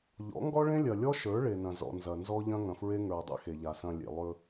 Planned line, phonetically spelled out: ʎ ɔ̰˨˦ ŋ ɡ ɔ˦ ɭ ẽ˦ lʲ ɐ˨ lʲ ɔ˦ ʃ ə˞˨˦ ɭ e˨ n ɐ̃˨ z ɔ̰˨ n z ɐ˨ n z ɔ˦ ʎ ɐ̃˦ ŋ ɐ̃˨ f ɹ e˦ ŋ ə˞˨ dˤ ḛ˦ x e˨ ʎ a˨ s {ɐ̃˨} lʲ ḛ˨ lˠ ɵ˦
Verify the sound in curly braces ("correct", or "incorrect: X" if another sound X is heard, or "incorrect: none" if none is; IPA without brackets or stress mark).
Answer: correct